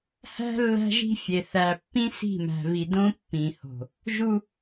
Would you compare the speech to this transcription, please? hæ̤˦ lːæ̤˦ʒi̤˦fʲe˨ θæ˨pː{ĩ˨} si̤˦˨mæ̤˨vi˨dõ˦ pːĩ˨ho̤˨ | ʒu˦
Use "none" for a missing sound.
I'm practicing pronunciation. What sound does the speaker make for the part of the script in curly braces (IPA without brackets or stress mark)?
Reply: ĩ˦